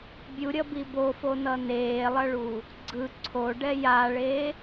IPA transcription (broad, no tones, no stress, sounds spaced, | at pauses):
bʲ u ɾʲ ʌ b i b o f o n ʌ n eː lˠ ʌ ɭ u | ɡ͡ǀ ɯ ǀʰ o ɖ ɛ j a ɭ e